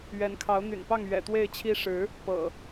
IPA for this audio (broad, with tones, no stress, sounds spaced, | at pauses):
ɥ ɛ˨˦ n kʰ ɑ˨˦ ʊ̯ n̪ y̰˨˩ n p ɑ˥˨ ŋ ɥ ɛ̰˨˩ t̪ w e˥˨ ɪ̯ t͡ɕʰ i˦ ʂ ɻ̩˨˦ | p ɤ̰˨˩